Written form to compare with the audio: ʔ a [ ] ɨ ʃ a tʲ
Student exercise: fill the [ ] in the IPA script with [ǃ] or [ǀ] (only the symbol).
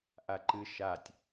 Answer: ǃ